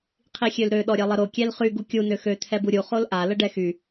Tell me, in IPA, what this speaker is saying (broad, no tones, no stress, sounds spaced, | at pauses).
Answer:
qʰ i xʲ ø l ɾ ø ɗ ɔ ɾʲ ɛ lˠ ə ɾ o kʲ ɛ l χ y ɡ u kʲ u n ø x ø t̪ʰ ɛ b u ɾʲ u χ o l ʔ a l ə ɖ ɛ x y